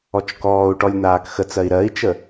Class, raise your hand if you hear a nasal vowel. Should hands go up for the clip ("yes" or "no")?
no